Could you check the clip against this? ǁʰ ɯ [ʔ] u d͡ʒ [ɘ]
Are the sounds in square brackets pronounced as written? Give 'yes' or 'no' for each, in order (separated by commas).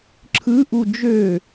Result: yes, no